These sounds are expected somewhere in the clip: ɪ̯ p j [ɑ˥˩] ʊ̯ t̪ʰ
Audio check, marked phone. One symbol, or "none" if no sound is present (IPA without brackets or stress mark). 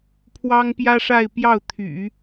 ɑ˥˩